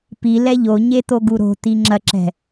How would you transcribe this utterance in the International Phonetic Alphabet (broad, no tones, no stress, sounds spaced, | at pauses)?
p i l ɛ ʎ o ɲ e t̪ o ɡ u ɾ o̤ t̪ i ŋ͡ǁ ɐ ǁ ɛ̤